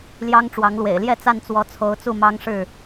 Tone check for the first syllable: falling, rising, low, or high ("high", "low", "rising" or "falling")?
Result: high